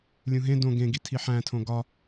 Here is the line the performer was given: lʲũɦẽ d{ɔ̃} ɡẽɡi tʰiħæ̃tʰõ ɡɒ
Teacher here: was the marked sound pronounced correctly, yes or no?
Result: no